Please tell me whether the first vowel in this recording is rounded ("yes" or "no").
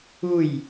yes